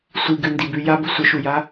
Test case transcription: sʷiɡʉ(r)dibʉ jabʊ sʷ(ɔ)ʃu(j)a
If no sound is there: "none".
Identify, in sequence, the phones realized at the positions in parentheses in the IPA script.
n, ə, j

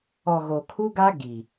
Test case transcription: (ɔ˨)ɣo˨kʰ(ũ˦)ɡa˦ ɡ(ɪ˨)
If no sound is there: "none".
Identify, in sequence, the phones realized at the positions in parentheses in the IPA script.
ɔ˨, u˦, i˨

